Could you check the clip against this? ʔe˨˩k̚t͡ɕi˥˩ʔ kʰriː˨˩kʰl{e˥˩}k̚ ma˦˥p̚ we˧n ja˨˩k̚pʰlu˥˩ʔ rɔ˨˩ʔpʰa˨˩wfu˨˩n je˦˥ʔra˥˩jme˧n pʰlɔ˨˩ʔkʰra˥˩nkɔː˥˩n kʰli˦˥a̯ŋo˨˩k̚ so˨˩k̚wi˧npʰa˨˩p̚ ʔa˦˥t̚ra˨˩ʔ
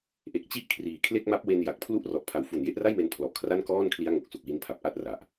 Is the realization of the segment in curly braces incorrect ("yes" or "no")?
no